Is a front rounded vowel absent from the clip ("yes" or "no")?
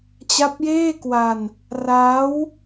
yes